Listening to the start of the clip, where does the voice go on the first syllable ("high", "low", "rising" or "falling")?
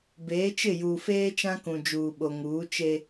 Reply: rising